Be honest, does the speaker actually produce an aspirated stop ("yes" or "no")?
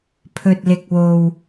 yes